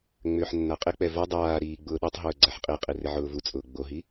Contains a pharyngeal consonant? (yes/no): yes